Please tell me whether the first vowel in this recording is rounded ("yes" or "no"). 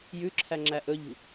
yes